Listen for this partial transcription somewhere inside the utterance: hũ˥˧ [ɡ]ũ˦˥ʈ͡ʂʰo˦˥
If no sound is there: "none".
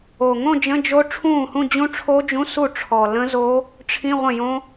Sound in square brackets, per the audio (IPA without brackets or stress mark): d͡ʑ